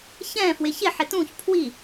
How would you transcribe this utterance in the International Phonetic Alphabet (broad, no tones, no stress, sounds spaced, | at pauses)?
ç ɛ̃ f w ɪ ç ɪ ħ ɪ t ũ ç pʰ w i